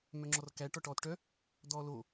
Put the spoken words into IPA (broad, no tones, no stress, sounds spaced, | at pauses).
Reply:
m œ ŋ͡ǁ ɔ r k æ ʈ ɔ ʈ ɔː t ʈ œ | d ɔː l o